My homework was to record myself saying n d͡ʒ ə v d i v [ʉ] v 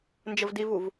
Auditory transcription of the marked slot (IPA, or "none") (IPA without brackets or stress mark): u